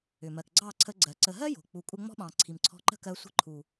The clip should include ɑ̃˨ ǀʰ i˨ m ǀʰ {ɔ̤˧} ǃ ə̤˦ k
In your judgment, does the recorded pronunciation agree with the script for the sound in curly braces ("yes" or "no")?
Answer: yes